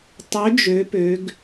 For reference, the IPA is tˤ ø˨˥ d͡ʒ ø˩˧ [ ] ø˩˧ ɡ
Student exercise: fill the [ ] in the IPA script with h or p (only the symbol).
p